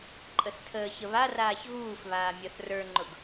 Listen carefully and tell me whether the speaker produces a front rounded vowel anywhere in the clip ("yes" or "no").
no